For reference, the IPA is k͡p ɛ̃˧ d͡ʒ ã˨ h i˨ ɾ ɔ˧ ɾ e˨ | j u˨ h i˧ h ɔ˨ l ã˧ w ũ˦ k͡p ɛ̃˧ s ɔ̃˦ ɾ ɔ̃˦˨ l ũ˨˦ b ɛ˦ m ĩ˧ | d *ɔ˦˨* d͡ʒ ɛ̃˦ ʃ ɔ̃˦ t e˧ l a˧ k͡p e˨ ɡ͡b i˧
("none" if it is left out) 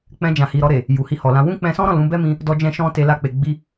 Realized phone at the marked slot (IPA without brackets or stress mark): ɔ˧